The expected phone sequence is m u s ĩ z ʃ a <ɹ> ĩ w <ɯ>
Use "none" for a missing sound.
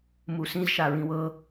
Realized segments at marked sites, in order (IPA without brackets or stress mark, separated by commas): ɹ, ɤ